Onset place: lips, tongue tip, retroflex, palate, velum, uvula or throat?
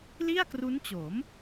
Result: tongue tip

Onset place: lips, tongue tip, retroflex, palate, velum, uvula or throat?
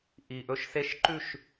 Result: throat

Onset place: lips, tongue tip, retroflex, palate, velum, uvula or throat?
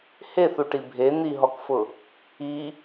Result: throat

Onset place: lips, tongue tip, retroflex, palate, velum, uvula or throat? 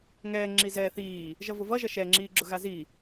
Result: velum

